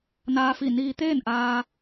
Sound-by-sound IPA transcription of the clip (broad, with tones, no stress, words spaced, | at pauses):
naː˧fi˧˩niː˧ t̪eː˥˨nʔaː˧